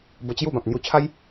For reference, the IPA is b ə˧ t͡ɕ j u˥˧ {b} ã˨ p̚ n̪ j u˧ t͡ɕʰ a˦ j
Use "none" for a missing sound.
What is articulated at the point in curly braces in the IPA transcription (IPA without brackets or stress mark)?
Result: b